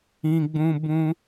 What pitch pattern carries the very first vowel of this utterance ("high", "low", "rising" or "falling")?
high